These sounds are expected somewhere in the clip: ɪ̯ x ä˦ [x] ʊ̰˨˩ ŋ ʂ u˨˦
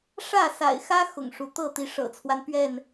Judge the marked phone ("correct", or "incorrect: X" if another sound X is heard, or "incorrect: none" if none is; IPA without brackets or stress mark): correct